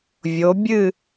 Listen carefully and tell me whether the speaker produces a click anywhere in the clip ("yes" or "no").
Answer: no